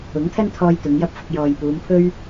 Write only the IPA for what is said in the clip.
ʊ˨˥ŋt̪ʰɐ˥nt̪ʰɔː˧j t̪ʊ˨˧ŋjɐ˥p̚fʊ˧k̚ jɔː˨jpuː˨˧m pʰɵ˥ɥ

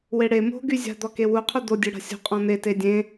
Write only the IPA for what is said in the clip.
weɽe mo̤ ɡyzʲa̤ d̪ɔkewu qʰud̪o dʲøɽa̤sʲo̤ qʼɔ̃n̪e tedʲẽ

